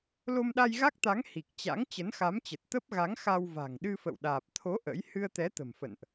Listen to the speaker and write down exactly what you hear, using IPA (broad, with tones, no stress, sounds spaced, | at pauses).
l o˧ m ɗ a˧ j ɣ a˦˥ k̚ t̪ a˨˦ ŋ h i˨˩ k̚ t͡ɕ a̰˧˥ ŋ t͡ɕ ə˨˦ n x a˨˦ m t͡ɕ ə˨˩ t̚ t̪ ə˦˥ p̚ ɣ a˨˦ ŋ x a˧ w v a̤˨˩ ŋ ɗ ɨ˧ f ə̰˧˨ w ɗ aː˨˩ p̚ t̪ʰ o˨˦ ʔ ə̰˧˥ j h ɨ˧ ə̯ t̪ ɛ˨˦ t̪ ə̤˨˩ m f ə̰˧˨ n ʔ